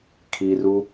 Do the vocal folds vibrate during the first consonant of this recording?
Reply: no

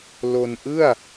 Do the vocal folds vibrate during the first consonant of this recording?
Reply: yes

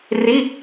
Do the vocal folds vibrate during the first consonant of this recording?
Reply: yes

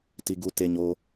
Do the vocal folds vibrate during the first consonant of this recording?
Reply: no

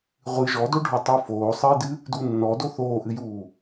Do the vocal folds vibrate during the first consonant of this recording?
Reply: yes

